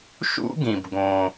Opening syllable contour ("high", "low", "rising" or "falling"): high